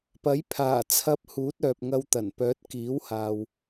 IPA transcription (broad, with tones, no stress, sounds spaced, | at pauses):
p ɐ˨˥ j pʰ aː˨˩ t͡sʰ ɐ˧ p̚ h uː˨˥ t̚ œː˨ p̚ ŋ ɐ˧ w t̪ ɐ˨˩ n p œː˨˥ t̚ k iː˨˥ w h aː˨ w